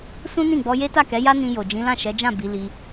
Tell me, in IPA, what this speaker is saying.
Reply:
sũ˦nĩ˦˨ɡ͡bɔ˧ je˦ta˦˨kɛ˨˦ja˦ nĩ˧jo˨ d͡ʒĩ˨˦lã˦˨ʃɛ˨˦d͡ʒã˦˨ bi˨˦ li˧

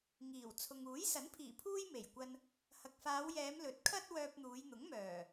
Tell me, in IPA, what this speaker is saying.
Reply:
ŋiː˨˩w t͡sʰʊ˨ŋuː˨˥j sɐ˨˥npʰiː˨˩ pʰuː˥jme˨˩jkʷɐ˧n | hɐ˨k̚faː˨˧wjɛː˨˧m lɵ˨˥t̚kʰɐ˥t̚ wœː˧p̚n̪uː˨˧j n̪ʊ˨˥ŋmœː˨˩

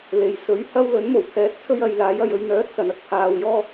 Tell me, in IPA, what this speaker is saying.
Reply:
le˨jsɵ˨˥ɥhɐ˥w lɵ˨˥nmo˨˩w t̪ʰɛː˧t̚t͡sʰɵ˥ɥ ɐ˨˧jlaː˨˥j ɐ˨j ɵ˨˧ɥn̪œː˨˥t̚ sɐ˨nɐ˧k̚ pʰaː˨wjɔː˥

